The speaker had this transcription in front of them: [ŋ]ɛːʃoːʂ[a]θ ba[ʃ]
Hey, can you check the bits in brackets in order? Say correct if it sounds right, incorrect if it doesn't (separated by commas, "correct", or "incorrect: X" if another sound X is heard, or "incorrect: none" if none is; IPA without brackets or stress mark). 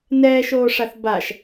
incorrect: n, correct, correct